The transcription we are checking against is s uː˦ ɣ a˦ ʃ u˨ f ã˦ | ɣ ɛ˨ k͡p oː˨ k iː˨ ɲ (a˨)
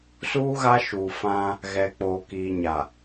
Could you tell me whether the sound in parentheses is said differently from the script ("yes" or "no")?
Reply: no